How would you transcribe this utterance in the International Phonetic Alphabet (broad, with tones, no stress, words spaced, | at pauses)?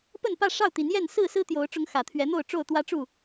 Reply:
pə˥˨npä˥˨ ʂɑ˥˨ʊ̯t̪i˨˦njɛ˥˨n sɹ̩˥˨ sɹ̩˦t̪jo˨˦ʊ̯ʈ͡ʂʊ˨˦ŋ xä˨˩t̪ʰɥɛ˨˦n̪o˥˨ʊ̯ʈ͡ʂo˥˨ʊ̯ t̪wä˦ʈ͡ʂu˥˨